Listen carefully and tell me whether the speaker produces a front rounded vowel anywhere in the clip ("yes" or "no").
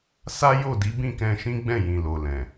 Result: no